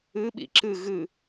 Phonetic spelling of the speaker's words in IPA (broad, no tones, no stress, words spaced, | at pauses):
ɨ ɓḭǁɨ ɣɨ